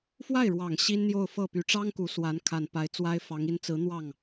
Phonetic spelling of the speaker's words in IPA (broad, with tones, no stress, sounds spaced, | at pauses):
f w a˥˩ ɪ̯ ɻ w ɑ˨˩ ŋ ɕ i˥ n n̪ j o˥˧ ʊ̯ f ɤ˥˩ p y˨˩ ʈ͡ʂ ɑ˥ ŋ k u˧˥ s w a˧˥ n kʰ a˨˩ n p a˧˥ ɪ̯ t͡s w a˥ ɪ̯ f ɑ˧˥ ŋ i˧˥ n t͡s ɹ̩˧˥ n̪ w ɑ˥˩ ŋ